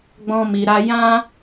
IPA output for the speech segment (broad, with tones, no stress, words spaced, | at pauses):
ɡ͡bɔ̃˦mi˧ɾa˦ jã˦